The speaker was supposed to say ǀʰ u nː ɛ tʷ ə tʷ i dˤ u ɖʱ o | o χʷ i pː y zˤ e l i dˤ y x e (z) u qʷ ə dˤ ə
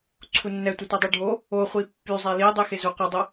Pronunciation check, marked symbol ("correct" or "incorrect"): correct